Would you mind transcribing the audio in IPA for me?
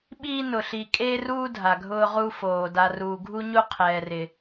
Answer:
ɓiː˦nʊ˨ ɬi˨kʼe˦ruː˦ dʱa˨ɡʱʊː˦ʁu˦foː˨ da˨ruː˨ɡʱu˦ɲu˦ qʰɛː˨rɪ˨

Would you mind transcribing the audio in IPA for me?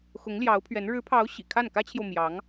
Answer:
xʊ˧˥ŋljɑ˧˥ʊ̯pʰɥɛ˧˥n ɻɻ̩˧˥pʰɑ˧˥ʊ̯ ɕḭ˨˩kʰa˥˩n kä˥t͡ɕʰjo˨ʊ̯ mjɑ˧˥ŋ

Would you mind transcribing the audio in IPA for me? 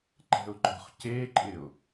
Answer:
ǃɛ̤ʊ̯ɡ͡ǃɔ̤χceǃʼɪʊ̯

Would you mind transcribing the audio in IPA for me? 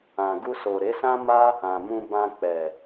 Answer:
ã˨ ɡu˧so˨ɾe˨˦ sã˦ma˦ | ã˨ mũ˧bã˧ k͡pɛ˨

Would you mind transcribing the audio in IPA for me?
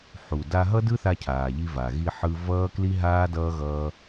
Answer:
ħu˨ da˧ɦʌ˦dɯ˦θa˧ cʰaː˨ʎi˧va˨ ɣi˧ħɯ˧ vʌː˦kli˦ɦaː˦ dʌː˦ɣʌː˦

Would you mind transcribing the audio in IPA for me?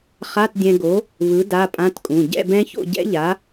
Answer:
χa˧˥˧t dʲɛ̃˧ɡo˨˥ | βɯ˨˥ da˧˥˧pʼã˧˥˧tkʼũ˩˧˩ ɟɛ̰˥˨bɛ̃˦˥ço̰˥˨ ɟɛ̰˦˥ʎa˨˥

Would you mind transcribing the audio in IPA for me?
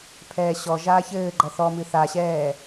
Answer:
pʰɛːɕɔʒaːç ɘːɡ͡ǃɐ θɔmɨ θaɕɛː

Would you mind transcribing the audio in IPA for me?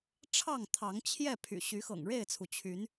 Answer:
ʈ͡ʂʰɑ˥˨ŋt̪ʰɑ˨˦ŋt͡ɕʰjɛ˥˨pʰy̰˨˩ ɕy˨˦xɤ̰˨˩ŋ ɻe˥˨ɪ̯t͡sʰu˩ t͡ɕʰy˨˦n

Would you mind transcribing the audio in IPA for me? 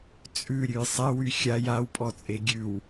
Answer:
t͡sʼʉɾʲʉj sˤɛwy xʲaj awpʼɔt͡sʼe ɡʲʉw

